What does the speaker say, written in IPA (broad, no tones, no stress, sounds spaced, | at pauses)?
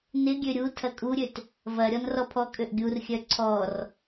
n ɪ ɡʲ ø ɾʲ u tʰ ɐ kʼ u ɾʲ ø t | v ɐ ɾʲ ɔ n r ɔ pʰ ɔ kʼ ø ʔ ɡʲ u r xʲ œ ǀʰ ɔ r